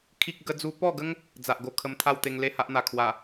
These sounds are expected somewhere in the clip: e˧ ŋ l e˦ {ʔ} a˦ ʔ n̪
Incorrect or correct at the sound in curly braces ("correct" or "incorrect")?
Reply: incorrect